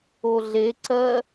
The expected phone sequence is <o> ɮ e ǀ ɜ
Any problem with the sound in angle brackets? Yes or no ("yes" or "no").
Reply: no